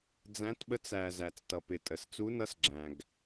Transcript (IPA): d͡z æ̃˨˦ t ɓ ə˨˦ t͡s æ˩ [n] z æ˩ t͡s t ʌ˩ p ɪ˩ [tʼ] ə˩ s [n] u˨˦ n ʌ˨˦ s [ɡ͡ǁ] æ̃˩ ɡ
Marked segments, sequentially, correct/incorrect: incorrect: none, correct, incorrect: t͡s, correct

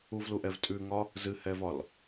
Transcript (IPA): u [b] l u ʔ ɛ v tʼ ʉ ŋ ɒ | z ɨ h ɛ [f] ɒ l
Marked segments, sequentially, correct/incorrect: incorrect: v, incorrect: v

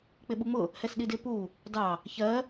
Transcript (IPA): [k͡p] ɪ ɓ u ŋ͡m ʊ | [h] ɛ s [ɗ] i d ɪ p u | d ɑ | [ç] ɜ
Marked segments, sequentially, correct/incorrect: correct, correct, correct, correct

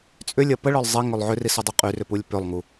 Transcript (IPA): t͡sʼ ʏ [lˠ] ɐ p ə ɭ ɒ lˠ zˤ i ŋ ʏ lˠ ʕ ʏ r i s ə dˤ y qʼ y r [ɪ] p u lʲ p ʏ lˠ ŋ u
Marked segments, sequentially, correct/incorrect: incorrect: lʲ, incorrect: ʏ

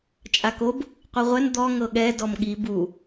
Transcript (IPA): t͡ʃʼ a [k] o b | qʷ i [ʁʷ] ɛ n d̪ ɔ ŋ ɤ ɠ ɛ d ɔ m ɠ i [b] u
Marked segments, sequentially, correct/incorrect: correct, correct, correct

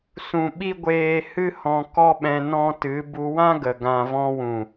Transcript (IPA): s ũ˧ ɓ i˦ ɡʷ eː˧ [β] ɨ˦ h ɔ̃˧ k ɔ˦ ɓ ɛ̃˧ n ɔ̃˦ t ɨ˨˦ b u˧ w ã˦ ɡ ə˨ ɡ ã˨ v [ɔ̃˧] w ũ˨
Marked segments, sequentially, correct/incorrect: incorrect: h, correct

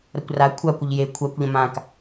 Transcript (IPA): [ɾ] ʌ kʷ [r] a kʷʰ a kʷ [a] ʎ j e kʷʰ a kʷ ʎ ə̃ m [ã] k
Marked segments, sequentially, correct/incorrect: correct, correct, incorrect: ə, correct

